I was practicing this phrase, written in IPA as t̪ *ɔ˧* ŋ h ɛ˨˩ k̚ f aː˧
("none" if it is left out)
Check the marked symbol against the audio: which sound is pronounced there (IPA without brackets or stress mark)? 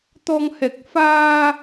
ɔ˧